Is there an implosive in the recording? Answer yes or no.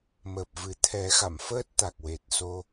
no